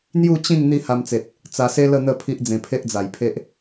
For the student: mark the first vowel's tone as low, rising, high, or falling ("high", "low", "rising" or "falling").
falling